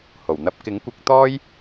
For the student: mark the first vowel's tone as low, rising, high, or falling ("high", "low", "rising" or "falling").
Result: low